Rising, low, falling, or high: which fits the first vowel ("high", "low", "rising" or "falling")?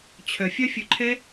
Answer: low